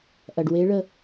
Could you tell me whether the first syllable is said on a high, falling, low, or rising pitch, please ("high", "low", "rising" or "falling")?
low